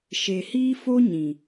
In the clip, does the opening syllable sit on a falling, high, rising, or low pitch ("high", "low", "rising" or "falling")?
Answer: low